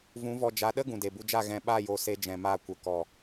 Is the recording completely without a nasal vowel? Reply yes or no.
no